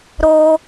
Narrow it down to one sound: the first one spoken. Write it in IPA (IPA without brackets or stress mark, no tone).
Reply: ɾ